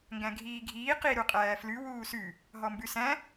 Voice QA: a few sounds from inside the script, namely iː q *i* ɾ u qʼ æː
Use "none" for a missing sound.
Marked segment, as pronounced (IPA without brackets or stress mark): i